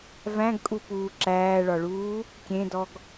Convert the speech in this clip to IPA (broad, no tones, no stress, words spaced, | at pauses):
væ̃ɡkʼupuː ǁæːɭɒɭuː | kʲẽdɔɡ